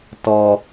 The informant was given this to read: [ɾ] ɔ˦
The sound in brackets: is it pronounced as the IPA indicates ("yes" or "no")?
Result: no